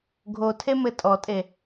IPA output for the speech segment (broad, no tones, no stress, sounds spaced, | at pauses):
ɡʱ o tʰ e m ɘ tʼ ɔ tʼ e